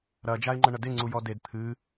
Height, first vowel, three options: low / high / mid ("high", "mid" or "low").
low